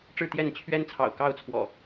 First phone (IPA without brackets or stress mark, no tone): ʈ͡ʂ